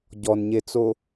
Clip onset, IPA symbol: ɟ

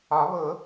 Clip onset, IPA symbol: ɒ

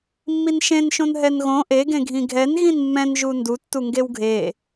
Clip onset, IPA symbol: mː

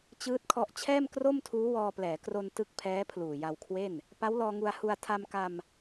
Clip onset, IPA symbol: t͡ɕ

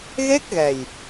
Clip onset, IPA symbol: ɣ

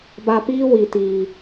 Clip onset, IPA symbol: b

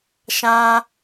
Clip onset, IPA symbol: ʃ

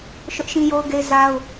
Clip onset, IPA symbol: ʃ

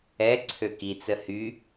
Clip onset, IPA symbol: ɛ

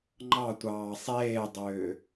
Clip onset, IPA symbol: ŋ͡ǃ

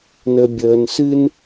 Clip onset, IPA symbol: n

